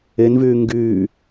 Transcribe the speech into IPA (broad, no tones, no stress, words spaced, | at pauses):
envyː ŋɡyː